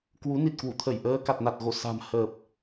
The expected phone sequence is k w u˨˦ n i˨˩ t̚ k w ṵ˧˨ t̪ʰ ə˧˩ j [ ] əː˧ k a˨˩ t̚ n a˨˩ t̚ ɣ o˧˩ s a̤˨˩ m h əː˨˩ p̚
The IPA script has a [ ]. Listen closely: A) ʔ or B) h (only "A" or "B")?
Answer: A